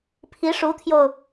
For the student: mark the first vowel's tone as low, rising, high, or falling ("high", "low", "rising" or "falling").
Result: rising